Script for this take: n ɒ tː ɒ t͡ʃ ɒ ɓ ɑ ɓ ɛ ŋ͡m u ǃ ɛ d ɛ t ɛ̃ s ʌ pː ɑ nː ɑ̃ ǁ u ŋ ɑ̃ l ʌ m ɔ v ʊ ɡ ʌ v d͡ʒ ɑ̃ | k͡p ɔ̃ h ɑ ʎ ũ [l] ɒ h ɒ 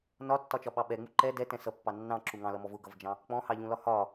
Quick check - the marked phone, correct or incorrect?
correct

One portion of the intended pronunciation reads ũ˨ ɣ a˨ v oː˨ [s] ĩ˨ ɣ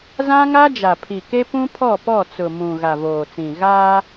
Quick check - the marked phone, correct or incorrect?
incorrect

